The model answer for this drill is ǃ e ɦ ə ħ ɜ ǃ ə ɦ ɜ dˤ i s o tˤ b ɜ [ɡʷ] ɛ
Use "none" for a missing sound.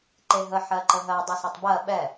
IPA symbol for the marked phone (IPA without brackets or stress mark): ɓ